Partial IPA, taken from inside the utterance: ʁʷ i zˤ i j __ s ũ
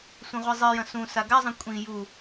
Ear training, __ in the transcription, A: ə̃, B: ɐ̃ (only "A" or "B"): B